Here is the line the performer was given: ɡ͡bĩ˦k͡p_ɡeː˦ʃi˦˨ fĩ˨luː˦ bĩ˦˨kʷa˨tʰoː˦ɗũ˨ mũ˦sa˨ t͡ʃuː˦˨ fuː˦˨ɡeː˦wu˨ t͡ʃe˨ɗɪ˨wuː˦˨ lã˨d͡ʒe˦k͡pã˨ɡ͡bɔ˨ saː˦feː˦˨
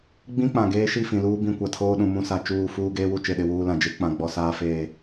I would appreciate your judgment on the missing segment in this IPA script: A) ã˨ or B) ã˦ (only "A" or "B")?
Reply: A